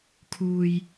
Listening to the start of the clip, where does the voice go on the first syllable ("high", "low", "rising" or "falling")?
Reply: low